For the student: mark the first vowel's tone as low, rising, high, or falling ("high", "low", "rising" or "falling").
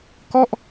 falling